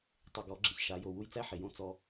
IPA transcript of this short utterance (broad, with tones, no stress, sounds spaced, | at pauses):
tˤ ɪ˨ ɡ ɔ˨˦ ɡ͡ǁ ɪ˨ ç ʃ a˨˦ j o˨ w u˦ j t͡s æ˦ ħ ɪ˨ j õ˦ t͡s ɔ˦